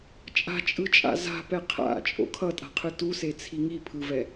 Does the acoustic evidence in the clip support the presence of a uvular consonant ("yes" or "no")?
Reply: yes